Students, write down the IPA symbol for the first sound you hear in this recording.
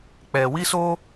k͡p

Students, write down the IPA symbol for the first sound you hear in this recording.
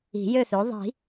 i̤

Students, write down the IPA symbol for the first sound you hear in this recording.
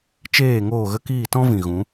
t͡ʃ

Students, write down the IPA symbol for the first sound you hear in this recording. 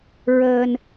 ɹ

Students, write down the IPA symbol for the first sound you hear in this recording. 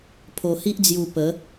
pʰ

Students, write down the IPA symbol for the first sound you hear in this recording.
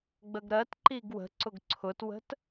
ɡ͡b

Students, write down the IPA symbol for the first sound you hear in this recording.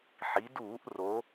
ħ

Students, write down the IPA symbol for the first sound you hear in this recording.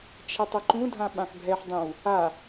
t͡ʃʰ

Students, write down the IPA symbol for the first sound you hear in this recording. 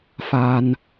f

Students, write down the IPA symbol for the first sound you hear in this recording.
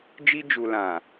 d͡ʒ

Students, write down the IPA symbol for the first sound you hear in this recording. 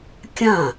kʲ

